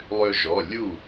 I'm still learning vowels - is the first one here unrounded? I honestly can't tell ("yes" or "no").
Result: no